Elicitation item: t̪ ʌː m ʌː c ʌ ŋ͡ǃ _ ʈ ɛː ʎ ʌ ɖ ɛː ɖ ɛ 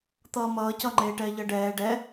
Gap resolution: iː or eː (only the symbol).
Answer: eː